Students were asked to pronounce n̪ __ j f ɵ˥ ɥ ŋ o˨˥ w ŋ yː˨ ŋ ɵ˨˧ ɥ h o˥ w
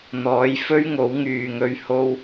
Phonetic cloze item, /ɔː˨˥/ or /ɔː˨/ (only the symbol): ɔː˨˥